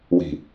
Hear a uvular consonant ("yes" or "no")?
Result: no